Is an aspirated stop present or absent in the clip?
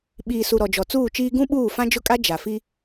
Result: absent